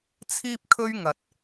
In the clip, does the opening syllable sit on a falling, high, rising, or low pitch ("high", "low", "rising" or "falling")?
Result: high